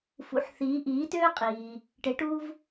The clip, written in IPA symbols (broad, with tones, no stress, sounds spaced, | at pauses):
f ṵ˩˥ ħ θ iː˩˥ ʔ iː˩˥ t øː˥ qʼ iː˩ | ʈ e˩˥ ʈ uː˥ v